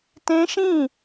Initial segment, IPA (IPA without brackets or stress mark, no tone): t